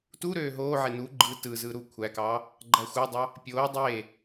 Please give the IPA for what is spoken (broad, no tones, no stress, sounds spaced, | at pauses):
t u ɾ øː ɦ oː ʕ e n u ɡ͡ǃ ɯ t ɯ z ɯ ɾ u kʷʰ æ k ɑː | ɡ͡ǃ æ xʷ ɑ dˤ ɑ | pʲ oː dˤ eː